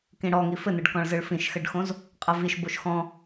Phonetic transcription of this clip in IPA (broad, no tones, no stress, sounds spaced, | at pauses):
k ĩ ɽ ɔ ŋ i f ɘ n ɯ ɖ k ɔ̃ ɭ z ɯ ɭ f ĩ ʃ x ɘ ɖ x õ z | qʼ ə v i ʃ b o ʃ x ɔ̃